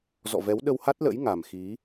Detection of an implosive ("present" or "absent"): present